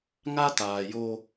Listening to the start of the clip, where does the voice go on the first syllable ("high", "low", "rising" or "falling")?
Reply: high